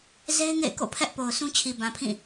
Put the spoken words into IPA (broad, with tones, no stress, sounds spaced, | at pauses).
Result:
z e˦ ɪ̯ ŋ ḛ˦˨ ɪ̯ k o̰˦˨ pʰ ɛ˦ ʔ p o˨ ʊ̯ sʰ ũ˦ t͡ɕʰ i˨ b ã˨ pʰ ĩ˦˨